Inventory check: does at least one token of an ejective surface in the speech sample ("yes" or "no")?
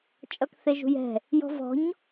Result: yes